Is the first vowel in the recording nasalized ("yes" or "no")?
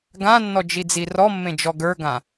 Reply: yes